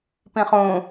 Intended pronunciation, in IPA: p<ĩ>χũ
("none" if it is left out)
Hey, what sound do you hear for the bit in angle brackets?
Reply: ĩ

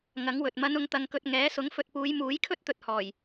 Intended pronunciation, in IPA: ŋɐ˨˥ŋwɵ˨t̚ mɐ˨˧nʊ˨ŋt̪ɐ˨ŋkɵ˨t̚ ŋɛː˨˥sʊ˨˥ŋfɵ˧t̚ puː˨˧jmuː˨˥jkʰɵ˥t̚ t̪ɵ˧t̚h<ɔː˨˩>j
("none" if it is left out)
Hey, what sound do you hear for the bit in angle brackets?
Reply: ɔː˨˩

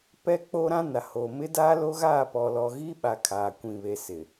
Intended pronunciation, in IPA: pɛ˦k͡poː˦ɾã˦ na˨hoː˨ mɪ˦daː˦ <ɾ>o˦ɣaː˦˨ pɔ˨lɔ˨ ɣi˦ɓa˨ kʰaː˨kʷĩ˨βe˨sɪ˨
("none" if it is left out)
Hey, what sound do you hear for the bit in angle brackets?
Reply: l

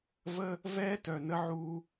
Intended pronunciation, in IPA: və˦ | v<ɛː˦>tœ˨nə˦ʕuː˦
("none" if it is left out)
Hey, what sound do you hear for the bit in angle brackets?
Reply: ɛː˦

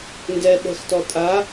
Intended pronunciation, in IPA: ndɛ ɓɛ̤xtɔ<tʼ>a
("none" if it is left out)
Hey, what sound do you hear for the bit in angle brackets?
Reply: tʼ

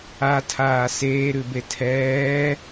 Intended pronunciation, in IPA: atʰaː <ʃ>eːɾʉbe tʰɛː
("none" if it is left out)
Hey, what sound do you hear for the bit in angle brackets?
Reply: s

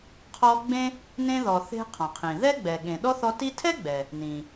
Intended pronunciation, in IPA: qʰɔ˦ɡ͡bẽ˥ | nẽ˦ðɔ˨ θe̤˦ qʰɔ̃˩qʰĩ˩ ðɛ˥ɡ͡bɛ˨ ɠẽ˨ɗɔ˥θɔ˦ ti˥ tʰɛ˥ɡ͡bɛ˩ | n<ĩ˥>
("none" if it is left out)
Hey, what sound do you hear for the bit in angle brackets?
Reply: ĩ˩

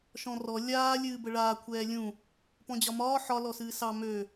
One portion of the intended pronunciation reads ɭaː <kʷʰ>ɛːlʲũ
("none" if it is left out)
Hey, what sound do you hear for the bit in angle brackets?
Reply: kʷʰ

